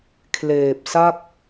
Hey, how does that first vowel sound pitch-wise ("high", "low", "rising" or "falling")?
low